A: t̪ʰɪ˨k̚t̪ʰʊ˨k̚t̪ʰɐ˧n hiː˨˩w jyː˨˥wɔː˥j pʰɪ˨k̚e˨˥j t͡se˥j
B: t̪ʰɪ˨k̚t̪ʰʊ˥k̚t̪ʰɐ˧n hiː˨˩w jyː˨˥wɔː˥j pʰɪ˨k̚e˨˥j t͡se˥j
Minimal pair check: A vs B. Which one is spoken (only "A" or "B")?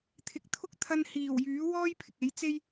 B